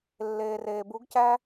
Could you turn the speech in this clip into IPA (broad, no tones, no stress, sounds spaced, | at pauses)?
lː eː r eː b u ɡ c æ